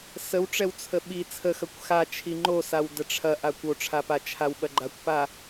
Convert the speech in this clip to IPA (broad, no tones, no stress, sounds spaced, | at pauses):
s ə w ʈ͡ʂ ɛ w t͡sʰ ə ɓ i t͡sʰ ə x ɐ kʷ x a t͡ʃʰ i ŋ͡ǃ o s a w d ə ʈ͡ʂʰ ɐ ʔ a kʷ o ʈ͡ʂʰ a p a t͡ʃʰ a w ɓ ɐ ɡ͡ǃ a kʷ p a